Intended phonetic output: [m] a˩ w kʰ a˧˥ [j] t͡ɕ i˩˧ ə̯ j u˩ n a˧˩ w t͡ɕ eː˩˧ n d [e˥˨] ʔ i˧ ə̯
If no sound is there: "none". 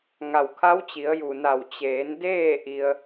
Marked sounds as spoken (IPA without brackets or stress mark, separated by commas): ŋ, w, eː˥˨